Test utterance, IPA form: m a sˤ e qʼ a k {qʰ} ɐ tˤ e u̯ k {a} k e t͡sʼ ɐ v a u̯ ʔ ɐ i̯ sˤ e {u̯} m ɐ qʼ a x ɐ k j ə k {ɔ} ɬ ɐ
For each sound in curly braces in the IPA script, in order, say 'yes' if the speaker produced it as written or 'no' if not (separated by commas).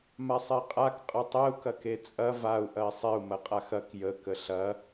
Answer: no, no, yes, no